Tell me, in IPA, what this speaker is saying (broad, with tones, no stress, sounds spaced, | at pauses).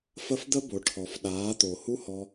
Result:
f ə˦ f d̪ ə˦ b o˨ ʈʰ ɔ˨ f ɗ aː˨˦ t̪ o˨ h u˦ h ɔ˧